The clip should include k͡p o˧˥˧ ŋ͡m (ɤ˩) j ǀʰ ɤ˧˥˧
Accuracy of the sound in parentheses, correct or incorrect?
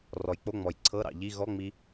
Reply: incorrect